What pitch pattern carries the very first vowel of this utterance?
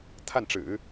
falling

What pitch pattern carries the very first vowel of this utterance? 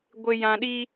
low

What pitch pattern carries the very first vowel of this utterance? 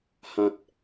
high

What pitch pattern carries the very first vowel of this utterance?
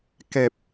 low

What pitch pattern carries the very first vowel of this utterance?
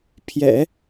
low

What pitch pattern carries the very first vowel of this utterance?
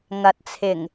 low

